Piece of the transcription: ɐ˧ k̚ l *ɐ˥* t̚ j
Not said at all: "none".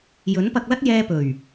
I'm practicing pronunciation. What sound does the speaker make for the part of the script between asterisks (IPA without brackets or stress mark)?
ɐ˥